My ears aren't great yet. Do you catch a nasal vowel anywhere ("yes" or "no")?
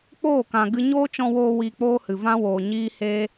yes